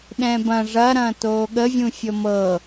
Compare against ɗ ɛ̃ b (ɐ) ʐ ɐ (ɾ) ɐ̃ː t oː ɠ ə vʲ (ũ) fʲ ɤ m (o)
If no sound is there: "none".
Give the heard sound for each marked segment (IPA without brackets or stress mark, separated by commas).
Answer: ɐ̃, ɾ, ũ, ɤ